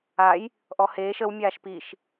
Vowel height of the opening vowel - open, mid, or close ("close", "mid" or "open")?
open